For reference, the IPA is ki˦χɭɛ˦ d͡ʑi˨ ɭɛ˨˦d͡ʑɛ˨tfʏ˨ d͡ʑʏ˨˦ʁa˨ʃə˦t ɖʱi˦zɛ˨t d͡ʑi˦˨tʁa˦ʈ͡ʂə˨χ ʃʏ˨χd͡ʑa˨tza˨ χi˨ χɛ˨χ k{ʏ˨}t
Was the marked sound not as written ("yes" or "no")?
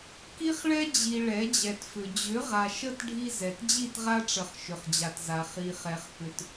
no